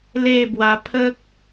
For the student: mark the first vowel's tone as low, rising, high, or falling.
falling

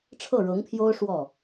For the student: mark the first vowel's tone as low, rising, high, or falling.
falling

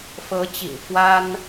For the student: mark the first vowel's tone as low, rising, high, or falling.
rising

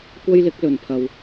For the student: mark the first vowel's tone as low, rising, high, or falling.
high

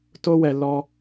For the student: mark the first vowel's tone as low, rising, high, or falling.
high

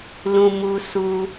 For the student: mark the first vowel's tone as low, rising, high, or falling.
low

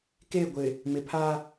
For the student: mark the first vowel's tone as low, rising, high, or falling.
falling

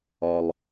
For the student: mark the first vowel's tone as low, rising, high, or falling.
low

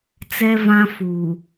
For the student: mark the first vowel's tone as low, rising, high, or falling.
high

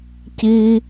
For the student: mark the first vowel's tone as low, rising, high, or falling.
high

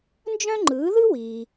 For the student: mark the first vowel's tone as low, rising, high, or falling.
high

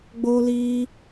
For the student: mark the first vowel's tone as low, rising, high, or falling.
high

